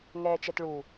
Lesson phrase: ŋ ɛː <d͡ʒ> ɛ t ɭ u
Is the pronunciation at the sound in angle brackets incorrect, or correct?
incorrect